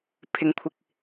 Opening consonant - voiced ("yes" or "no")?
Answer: no